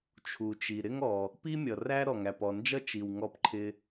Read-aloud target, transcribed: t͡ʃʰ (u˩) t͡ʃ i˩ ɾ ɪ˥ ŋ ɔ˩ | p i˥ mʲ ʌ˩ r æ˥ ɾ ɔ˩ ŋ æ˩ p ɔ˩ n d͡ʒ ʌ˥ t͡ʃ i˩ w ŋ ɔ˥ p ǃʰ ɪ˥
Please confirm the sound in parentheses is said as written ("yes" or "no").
yes